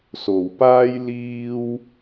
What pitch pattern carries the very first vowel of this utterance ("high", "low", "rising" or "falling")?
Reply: low